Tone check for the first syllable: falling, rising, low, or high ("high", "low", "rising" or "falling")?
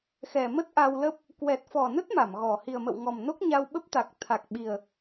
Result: low